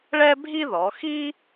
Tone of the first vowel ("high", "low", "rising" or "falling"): high